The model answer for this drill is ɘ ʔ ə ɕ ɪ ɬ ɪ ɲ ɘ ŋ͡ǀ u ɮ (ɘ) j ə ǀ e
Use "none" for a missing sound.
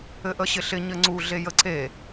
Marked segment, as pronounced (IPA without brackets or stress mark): e